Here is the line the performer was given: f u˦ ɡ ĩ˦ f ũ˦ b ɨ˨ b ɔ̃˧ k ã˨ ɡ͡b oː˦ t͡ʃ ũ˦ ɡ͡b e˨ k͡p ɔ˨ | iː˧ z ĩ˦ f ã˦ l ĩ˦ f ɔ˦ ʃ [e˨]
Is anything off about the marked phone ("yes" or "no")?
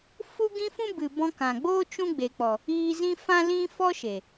no